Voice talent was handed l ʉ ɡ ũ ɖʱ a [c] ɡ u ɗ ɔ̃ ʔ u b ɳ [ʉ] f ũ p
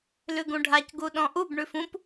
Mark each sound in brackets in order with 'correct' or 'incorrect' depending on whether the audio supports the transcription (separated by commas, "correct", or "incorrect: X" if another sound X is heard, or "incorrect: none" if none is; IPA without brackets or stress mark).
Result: correct, correct